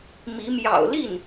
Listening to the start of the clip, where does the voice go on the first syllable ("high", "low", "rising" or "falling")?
rising